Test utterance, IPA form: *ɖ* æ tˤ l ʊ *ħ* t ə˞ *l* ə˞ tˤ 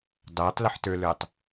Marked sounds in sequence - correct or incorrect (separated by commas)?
incorrect, correct, correct